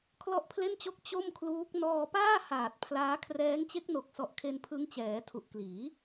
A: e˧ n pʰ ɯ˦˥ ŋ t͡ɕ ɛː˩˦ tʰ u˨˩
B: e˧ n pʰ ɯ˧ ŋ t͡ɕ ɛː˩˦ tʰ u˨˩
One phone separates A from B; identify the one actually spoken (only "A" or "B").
A